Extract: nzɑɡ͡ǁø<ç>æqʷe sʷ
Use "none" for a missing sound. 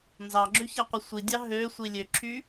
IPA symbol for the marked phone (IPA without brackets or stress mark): ç